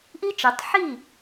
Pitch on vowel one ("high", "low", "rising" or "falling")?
high